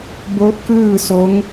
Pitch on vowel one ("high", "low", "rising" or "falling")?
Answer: rising